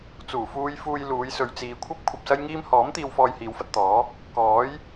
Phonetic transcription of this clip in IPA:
t͡s uː˨˩ f uː˧ j f uː˧ j l uː˨˧ j s ɵ˨ ɥ t͡s iː˨ kʷʰ ɐ˥ p̚ kʷʰ ɐ˧ p̚ s ɐ˥ j ŋ iː˥ m h ɔː˨˥ m t̪ iː˧ w f ɔː˧ j h iː˨˧ w f ɐ˧ t̚ t̪ ɔː˨˥ | k ɔː˨˥ j

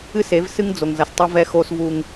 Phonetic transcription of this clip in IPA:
ɨ˦ s e˨˦ v s ɨ˦ ŋ d͡z o˨ ŋ z ɐ˨ s tˤ ɘ˦ v ɛ˦ x o˦ s v u˦ ŋ

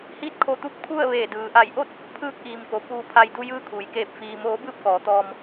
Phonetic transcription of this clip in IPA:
h iː˧˥ t̚ kʰ o˧˩ t̪ u˧˥ p̚ kʰ u˥˨ ə̯ ʋ eː˧˩ d ɯː˩ ʔ a˧˩ j ʔ o˥˨ t̚ | pʰ ɯː˧ k̚ ʔ iː˩ m k o˩ p uː˧ pʰ a˧ j d u˧ j ɯː˧ kʰ uː˩ j k eː˧˩ p̚ f iː˩ m oː˩˧ b ɯː˥˨ p̚ k ɔː˩˧ t̪ ɔː˧ m

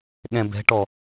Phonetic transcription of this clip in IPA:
ɠ ɛ̃ b ɛ̤ ʈ ɔ

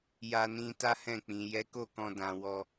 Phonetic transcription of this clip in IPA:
j a˧ n ĩ˧ t a˦ h ɛ̃˦˨ k͡p ĩ˨ j ɛ˨˦ k o˦˨ k ɔ̃˧ d ã˧ w ɔ˧

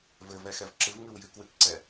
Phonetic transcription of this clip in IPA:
v ɘ v ɛ x ɛ v ǁ ɨ v ŋ ɨ w j ɨ k w ɨ k ǀ ɛ

